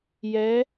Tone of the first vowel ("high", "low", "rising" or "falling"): rising